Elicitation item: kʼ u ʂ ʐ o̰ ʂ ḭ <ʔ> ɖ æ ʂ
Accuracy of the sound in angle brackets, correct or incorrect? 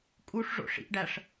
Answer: correct